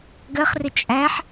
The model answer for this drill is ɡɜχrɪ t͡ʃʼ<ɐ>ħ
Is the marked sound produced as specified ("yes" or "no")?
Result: no